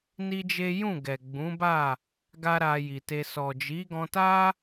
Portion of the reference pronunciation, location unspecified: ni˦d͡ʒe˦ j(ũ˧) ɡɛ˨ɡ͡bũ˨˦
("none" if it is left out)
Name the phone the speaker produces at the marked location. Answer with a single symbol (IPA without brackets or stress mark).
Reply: ũ˦˨